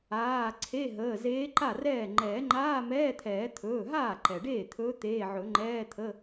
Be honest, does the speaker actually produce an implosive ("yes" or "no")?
no